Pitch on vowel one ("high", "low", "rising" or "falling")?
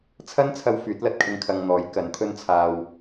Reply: high